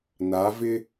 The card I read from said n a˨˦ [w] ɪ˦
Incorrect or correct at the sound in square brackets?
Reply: incorrect: v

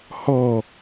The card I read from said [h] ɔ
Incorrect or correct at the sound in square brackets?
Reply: correct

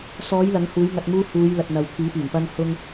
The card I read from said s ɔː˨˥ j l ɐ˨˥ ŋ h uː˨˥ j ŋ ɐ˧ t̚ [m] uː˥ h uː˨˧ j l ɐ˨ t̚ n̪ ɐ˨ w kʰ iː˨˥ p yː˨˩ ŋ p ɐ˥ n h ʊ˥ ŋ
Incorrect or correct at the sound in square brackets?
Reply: correct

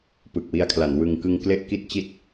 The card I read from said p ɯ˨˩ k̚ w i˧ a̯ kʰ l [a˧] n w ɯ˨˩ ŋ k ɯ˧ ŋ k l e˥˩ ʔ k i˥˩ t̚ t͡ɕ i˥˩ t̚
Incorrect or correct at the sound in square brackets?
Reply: incorrect: a˩˦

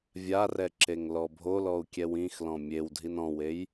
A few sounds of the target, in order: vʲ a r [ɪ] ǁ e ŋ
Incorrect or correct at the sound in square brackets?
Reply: incorrect: ɛ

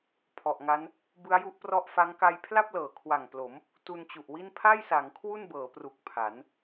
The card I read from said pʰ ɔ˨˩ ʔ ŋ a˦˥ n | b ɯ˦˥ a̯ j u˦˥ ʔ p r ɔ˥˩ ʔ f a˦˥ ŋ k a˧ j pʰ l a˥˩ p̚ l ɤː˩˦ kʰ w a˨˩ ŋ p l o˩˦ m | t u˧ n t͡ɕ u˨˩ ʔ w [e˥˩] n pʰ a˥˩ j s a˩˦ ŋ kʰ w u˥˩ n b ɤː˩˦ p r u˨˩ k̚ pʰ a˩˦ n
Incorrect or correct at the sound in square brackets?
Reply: incorrect: i˥˩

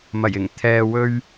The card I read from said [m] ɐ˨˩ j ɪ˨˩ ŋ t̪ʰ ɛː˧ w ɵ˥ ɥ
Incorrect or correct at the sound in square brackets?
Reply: correct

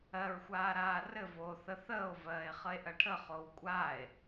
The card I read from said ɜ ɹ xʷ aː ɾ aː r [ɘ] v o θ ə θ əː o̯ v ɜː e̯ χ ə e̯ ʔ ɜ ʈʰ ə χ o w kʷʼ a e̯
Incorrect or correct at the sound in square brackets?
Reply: correct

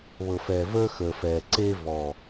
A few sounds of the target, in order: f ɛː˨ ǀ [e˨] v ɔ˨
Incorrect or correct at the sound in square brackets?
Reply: incorrect: e˦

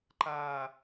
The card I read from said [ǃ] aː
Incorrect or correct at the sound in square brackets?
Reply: correct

